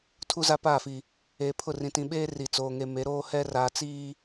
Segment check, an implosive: present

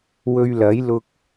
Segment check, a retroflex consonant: absent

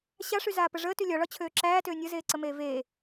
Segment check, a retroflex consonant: present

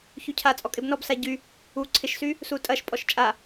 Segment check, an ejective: present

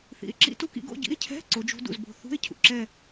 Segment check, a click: present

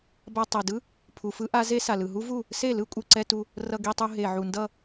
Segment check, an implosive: absent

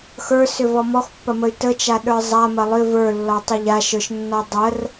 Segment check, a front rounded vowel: present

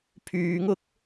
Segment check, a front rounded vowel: present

